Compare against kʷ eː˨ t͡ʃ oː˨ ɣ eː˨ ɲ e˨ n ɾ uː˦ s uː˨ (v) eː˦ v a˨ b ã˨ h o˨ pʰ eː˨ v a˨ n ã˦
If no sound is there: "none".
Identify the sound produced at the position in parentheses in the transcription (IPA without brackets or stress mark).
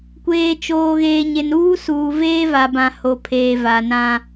v